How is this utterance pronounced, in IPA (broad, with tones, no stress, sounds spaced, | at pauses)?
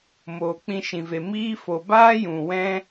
m oː˨ k͡p ĩ˧ ʃ ĩ˨ v e˨ m iː˦ f o˨ b aː˦ j ũ˨ w ɛ̃˦